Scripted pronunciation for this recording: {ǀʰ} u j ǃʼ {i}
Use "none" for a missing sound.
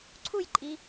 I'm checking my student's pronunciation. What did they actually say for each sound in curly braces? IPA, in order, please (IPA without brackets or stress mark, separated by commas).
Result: ǀʰ, i